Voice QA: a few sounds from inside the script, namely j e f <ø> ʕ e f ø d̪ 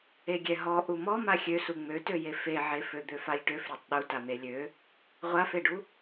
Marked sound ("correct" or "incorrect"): incorrect